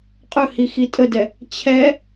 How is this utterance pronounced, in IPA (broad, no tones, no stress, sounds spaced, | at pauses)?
qʼ ɵ h i x i tʼ ə d ɛ | t͡ɕʰ ɛ